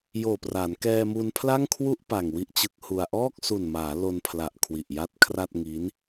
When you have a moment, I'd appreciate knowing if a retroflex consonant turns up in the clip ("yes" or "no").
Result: no